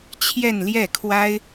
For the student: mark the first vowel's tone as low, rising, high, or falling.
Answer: falling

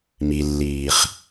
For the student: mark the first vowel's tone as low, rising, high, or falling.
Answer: low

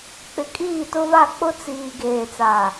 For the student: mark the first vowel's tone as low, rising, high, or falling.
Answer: rising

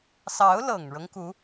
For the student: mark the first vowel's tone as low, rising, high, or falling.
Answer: rising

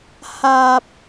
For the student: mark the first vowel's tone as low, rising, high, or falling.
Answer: high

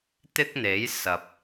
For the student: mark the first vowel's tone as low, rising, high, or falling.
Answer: high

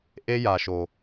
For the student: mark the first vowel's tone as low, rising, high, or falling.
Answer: high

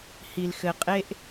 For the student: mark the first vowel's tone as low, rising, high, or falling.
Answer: low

